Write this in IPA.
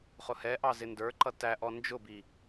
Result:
χʊhɛʔɑ zɪndə˞ǃʌ tæʔɔ nd͡ʒʊbi

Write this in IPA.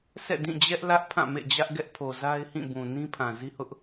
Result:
sɛ̰˦˨dĩ˦˨d͡ʑɛ˦ʔlä˦ʔ pʰã˦˨mḛ˦˨d͡ʑä˦ʔ ɡɛ˦ʔpʰo˨za˦ɪ̯ hĩ˦˨bũ˨ nĩ˦pʰã˨ zi˦hʊ˦ʔ

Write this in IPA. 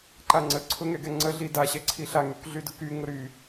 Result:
ǃaŋ͡ǀə ǀʰʊŋɛɡɛŋ͡ǀə ɮidaɕɛ ǀʰiɬa ŋykɮydʊky ŋʊɾy

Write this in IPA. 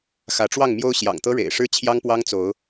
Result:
xä˨˦ʈ͡ʂwɑ˥˨ŋmjo˦ʊ̯ ɕjɑ̰˨˩ŋt̪ɤ˦ɻḛ˨˩ɪ̯ʂɻ̩˦ t͡ɕʰjɑ˦ŋpwɑ˦ŋt͡so˨˦ʊ̯

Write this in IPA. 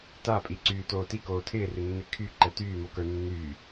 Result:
tapʼiǀyː toːti koːtʰɪːrɪnːɪ kʰy ǃɛtyːmokə˞ nːyː

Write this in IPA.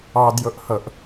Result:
ɑdjʊʔhɤʔ

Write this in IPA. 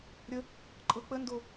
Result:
ɾʲə | ǃʼɤk͡pəndo

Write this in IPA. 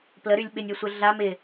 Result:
pləɾylʲ ɓɪnʲɔsʷɪ ɮam ɪ

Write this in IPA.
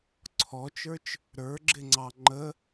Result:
ǀʰɔt͡ʃə˞t͡ʃ | ɾə˞ɡ͡ǁɪŋ͡ǀɑ ŋ͡ǃə

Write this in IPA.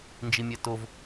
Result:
nd͡ʒimʲɛtov

